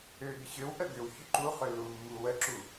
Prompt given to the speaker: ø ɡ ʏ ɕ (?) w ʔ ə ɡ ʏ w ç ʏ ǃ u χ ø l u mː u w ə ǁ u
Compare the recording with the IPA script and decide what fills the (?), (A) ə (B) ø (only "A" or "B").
B